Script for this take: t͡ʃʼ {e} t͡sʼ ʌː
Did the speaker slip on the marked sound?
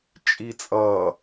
yes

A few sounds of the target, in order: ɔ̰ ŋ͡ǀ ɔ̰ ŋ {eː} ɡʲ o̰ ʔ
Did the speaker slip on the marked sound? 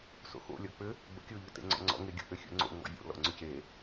yes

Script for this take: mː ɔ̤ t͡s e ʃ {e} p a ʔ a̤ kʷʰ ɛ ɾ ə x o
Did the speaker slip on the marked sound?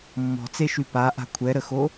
yes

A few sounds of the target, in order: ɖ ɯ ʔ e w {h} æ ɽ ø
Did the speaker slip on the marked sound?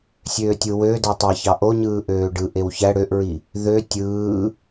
yes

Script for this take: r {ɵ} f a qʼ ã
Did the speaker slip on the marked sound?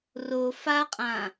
yes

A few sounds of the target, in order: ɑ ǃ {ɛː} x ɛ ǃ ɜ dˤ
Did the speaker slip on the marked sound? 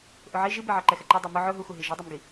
yes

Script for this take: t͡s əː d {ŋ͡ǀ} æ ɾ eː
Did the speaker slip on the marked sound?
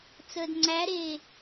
no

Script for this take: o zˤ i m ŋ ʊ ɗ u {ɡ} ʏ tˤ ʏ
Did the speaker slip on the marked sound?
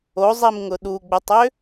yes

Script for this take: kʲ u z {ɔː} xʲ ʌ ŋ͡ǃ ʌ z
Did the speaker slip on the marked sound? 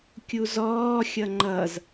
no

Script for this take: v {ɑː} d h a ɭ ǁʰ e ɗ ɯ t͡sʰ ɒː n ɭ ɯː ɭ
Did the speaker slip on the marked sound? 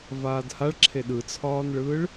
yes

